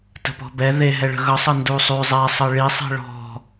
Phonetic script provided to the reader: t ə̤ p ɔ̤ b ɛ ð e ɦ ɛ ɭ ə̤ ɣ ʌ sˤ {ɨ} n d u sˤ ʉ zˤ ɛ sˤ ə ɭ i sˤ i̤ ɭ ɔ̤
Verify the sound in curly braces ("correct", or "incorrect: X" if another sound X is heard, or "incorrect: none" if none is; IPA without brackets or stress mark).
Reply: incorrect: ə